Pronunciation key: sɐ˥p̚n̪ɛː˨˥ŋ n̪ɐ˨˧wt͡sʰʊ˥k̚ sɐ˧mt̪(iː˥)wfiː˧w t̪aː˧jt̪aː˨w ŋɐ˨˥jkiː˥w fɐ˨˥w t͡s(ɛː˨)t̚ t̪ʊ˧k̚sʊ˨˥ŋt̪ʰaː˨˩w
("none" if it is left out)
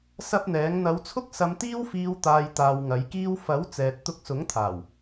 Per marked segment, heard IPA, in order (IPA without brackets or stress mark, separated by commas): iː˥, ɛː˨